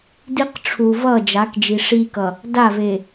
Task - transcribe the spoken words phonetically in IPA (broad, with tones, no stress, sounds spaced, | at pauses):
d i˦ q ʈ͡ʂʰ u˨ v ʌ˦˨ d͡ʒ a˨˦ k d͡ʒ i˨ ʂ i˦ k ʌ˨ | d a˦˨ v e˨